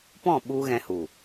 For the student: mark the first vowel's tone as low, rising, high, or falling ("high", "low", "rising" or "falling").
falling